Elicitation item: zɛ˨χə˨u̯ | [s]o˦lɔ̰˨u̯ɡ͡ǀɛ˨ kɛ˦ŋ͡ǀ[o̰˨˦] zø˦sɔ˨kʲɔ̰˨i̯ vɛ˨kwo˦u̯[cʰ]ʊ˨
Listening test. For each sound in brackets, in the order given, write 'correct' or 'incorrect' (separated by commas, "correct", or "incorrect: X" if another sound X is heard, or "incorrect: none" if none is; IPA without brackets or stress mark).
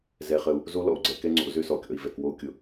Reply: incorrect: z, correct, incorrect: kʲ